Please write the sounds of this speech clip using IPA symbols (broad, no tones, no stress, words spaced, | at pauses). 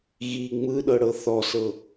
ɣi ŋ͡mɯɗɤɽɤ θɔsɤ